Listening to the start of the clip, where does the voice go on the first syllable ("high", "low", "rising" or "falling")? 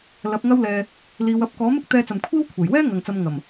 rising